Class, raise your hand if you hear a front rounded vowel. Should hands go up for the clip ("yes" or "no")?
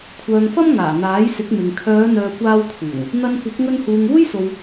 yes